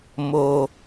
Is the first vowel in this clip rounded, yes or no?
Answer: yes